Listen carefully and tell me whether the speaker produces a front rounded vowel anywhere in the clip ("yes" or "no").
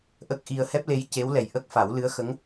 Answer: no